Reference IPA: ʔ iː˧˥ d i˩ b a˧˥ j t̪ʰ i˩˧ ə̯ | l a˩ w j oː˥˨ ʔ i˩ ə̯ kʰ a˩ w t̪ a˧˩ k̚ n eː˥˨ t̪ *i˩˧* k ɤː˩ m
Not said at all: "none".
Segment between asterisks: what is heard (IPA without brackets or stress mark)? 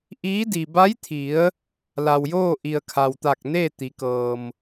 i˩˧